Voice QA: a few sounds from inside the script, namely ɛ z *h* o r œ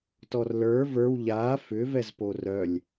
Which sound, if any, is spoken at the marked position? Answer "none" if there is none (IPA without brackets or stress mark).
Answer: p